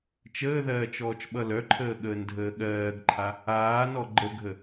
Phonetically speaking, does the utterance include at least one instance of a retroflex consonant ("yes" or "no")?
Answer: no